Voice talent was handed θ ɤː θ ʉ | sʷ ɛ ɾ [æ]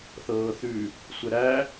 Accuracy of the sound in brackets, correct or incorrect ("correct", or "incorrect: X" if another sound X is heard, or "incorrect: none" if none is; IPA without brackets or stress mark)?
correct